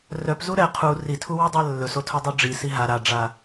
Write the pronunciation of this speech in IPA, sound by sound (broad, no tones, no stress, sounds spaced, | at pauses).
r œ p z u ɾ ɛ qʰ u r i tʰ u w i dˤ a lː ɵ s o tʰ o dˤ o ɖ͡ʐ i s i ɦ a ɾ a ɖ͡ʐ a